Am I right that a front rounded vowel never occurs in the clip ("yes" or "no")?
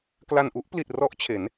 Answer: yes